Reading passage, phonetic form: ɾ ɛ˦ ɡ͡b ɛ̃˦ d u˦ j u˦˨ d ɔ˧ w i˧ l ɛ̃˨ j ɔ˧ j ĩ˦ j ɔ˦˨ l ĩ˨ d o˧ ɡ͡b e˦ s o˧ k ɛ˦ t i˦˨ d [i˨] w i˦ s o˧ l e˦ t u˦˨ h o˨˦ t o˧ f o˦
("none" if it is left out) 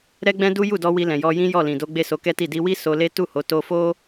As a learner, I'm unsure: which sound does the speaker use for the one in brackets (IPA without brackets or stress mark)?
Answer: i˧